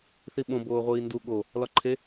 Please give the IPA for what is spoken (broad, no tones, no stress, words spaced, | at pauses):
θiɓõ boːʁʷiːndu ɠo | lɒǃʰe